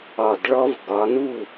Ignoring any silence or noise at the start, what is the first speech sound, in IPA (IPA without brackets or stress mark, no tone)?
ɒ